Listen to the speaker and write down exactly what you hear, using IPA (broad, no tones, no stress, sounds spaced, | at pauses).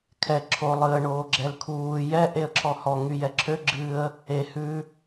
kʰ ɛ ǁʰ o lˠ ɨ ə̯ ɳ oː ɡ͡ǁ ɛ l kʰ uː j ɛ ʔ e ə̯ ǁʰ ɔ h ɔ ŋ y j ɛ ǁʰ ø ɡ͡ǁ ɨ ə̯ | e h ʉ